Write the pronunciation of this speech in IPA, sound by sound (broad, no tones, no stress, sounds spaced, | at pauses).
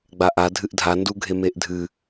ɡ͡b a ʔ a dʱ ɨ ʔ dʱ a n d u ɡʱ e m e ʔ dʱ ɨ